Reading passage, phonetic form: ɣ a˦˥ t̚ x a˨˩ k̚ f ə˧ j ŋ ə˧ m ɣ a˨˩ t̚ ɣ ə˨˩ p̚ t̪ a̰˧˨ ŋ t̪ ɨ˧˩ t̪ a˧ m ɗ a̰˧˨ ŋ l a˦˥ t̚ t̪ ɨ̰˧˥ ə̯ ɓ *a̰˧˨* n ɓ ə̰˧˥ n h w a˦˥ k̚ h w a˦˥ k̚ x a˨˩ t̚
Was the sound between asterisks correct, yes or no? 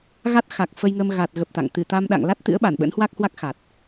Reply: no